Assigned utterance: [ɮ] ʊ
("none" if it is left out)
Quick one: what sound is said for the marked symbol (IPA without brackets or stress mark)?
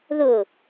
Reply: ð